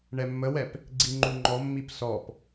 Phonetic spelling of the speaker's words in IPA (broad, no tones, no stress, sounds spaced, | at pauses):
ɳ ɛ mː ə w ɛ p | ɡ͡ǀ i ŋ͡ǃ u ŋ͡ǃ ɔ mː i p s ɔ p